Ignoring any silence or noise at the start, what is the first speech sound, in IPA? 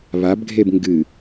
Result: β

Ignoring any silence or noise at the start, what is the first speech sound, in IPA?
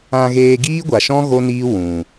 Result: ã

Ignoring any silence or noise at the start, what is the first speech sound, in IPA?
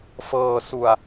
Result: f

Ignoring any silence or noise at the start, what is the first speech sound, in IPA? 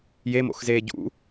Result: j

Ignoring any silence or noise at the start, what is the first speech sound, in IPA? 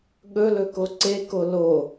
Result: ɠ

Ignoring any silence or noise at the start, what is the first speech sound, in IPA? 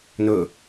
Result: n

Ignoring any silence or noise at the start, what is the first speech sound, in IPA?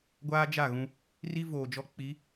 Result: ɡʷ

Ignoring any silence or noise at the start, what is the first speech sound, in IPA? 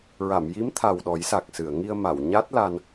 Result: ɹ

